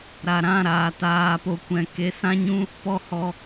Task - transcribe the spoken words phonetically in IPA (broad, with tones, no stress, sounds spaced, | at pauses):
ɾ a˨ ɾ ã˦˨ ɾ aː˨ t aː˧ p o˧ kʷ ɛ̃˨ k e˨˦ s ã˦ ɲ ũ˦ | p ɔ˦ h ɔ˧